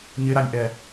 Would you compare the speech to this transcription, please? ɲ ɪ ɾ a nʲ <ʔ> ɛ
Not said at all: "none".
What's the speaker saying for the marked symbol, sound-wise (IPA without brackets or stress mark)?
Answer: ʔ